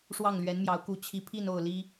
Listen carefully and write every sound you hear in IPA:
ʂwɑ˥˩ŋlɥɛ˧˥nmjɑ˧˥ʊ̯ku˧˥ t͡ɕʰi˧˥pʰi˥˧n o˥˩ʊ̯li˥

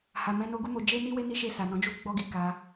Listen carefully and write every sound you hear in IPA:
ha˨mɛ̃˨˦ no˦ ɡu˦mo˧ d͡ʒe˦ni˦we˦ni˦ ʃe˦˨sa˨nɔ̃˨˦d͡ʒu˦ ɡ͡bɔ˦ɡi˧ ka˧

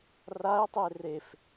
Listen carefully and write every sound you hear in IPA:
rae̯tˤe ref

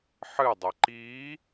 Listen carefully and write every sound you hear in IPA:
ħɨ dˤiǃiː

